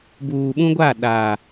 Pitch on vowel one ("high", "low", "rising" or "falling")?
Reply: low